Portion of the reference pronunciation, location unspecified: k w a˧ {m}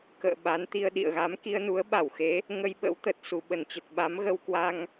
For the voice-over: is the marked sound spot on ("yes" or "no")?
no